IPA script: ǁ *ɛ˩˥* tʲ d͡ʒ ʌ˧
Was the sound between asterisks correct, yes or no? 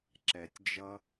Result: no